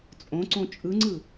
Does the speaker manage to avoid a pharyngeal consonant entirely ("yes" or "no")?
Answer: yes